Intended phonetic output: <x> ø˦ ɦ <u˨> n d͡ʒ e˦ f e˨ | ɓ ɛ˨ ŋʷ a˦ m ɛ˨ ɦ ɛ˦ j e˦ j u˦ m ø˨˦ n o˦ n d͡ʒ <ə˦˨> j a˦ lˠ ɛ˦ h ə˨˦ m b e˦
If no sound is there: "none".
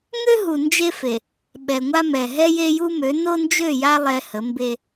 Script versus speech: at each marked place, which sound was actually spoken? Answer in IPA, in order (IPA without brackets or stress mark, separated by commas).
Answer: ŋ, u˨, ø˦˨